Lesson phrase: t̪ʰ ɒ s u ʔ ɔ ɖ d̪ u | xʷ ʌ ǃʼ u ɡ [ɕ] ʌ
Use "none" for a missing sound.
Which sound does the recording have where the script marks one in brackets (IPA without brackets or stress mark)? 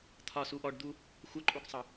sˤ